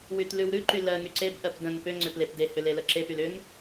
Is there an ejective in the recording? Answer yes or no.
no